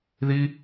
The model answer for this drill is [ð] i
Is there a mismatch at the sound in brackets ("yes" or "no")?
no